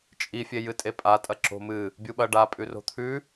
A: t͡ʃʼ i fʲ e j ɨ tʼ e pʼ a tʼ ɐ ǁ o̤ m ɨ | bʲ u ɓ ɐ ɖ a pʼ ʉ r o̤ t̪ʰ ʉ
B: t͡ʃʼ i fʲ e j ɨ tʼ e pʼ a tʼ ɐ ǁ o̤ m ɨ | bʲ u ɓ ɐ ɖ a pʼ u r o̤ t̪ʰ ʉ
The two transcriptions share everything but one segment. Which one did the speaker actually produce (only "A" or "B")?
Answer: A